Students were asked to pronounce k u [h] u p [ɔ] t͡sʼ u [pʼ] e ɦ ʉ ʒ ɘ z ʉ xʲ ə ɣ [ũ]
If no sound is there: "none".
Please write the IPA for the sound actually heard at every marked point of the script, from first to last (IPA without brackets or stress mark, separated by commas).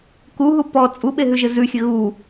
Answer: ɦ, ɔ, ɓ, u